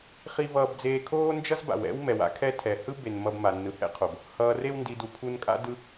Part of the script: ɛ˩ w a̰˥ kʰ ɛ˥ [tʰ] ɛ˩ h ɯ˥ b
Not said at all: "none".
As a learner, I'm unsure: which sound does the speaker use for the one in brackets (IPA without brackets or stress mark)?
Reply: tʰ